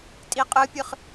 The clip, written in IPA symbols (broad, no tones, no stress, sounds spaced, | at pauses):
tʼ i qʼ ɯ pʲ ɯ χ